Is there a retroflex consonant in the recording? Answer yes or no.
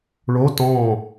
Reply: yes